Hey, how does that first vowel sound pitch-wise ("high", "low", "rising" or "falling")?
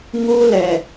high